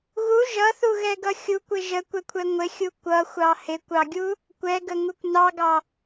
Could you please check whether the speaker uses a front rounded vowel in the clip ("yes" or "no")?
no